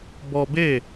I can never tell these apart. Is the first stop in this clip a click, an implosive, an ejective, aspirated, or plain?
plain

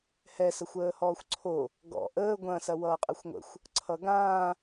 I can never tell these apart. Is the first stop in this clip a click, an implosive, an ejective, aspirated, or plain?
click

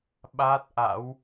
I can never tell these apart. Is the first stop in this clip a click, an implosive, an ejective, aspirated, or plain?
implosive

